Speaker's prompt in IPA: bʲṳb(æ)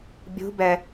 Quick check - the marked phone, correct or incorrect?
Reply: incorrect